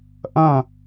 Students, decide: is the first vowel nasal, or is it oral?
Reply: nasal